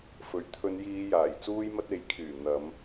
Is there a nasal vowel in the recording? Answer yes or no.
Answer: no